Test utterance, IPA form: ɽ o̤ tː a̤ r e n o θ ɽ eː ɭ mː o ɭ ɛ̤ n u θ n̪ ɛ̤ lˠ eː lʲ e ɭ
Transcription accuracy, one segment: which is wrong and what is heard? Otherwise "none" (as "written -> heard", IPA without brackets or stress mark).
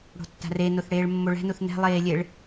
none